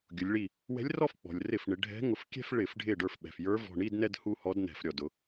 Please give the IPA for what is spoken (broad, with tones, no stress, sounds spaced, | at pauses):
ɡʲ ʊ˩˧ lʲ ɭ i˧˩ | w ɛ̤˧˥ lʲ r ɔ˥˧ f k͡p ɔ̤˩ lʲ r ɪ˧˩˧ f ɳ ɪ˩˧ ɖʱ ɛ̤˧˥ ŋ ʊ˧˩˧ f kʲ ɛ̤˥˧ f ɭ ɪ˧˩˧ f ɖʱ ɪ˧˩ ɖ ə˞˧˩ f ɓ ɛ̤˩ f j ə˞˧˥ v ɔ̤˧˩ ɳ i˥˧ d n ɛ˥˧ d h u˥˧ h ɔ˧˥ d n ɛ̤˧˩˧ f ɾʲ ɔ˩ d ʊ˩˧